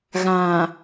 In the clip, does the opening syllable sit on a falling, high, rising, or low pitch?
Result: low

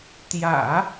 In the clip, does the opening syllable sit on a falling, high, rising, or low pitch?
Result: low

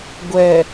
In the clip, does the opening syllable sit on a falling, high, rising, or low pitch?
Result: low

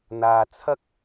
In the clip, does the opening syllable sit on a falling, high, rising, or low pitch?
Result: low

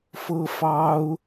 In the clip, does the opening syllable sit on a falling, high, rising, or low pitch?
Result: high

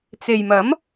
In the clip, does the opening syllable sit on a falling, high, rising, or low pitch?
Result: low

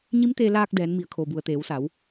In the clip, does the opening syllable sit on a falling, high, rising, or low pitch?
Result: rising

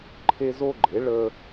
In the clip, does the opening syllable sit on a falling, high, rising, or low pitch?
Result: high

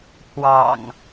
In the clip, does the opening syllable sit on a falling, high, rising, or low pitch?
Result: low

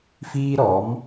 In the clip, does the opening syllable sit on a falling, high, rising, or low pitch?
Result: high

